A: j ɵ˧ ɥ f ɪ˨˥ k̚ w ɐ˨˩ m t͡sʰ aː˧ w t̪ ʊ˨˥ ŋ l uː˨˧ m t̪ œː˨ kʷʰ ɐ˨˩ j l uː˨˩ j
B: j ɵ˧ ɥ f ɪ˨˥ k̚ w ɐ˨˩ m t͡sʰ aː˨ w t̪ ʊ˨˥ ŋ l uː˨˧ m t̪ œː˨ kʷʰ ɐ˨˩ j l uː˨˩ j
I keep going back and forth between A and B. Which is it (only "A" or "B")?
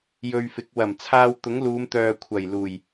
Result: A